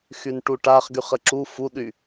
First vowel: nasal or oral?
oral